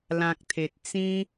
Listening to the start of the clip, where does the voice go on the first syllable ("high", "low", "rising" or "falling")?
low